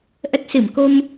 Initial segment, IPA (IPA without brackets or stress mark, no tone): ʔ